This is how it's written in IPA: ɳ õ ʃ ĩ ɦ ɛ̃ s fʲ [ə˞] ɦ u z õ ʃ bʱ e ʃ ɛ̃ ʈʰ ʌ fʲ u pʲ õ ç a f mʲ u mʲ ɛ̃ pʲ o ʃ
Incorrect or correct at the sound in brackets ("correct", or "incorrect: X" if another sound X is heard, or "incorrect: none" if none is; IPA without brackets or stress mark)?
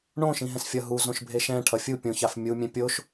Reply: incorrect: ʌ